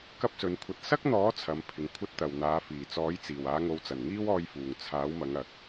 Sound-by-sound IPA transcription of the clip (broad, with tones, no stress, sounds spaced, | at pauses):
k ɐ˥ p̚ s ɵ˨˧ n kʷʰ ɐ˧ t̚ s ɐ˥ k̚ n̪ ɔː˨˥ t͡sʰ ɐ˨˥ m pʰ ɪ˨ ŋ kʷʰ ɐ˥ t̚ t̪ ɐ˨ w n̪ aː˨˧ f iː˨˩ t͡s ɔː˨˥ j t͡s iː˨˩ w aː˨˧ ŋ o˨˧ w t͡s ɐ˨˩ n ŋ iː˥ w ɔː˧ j f uː˨˩ ŋ t͡sʰ aː˨˥ w m ɐ˨˧ ŋ ɐ˨ k̚